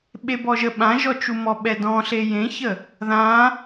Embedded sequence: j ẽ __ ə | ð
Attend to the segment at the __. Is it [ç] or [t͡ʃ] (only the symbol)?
ç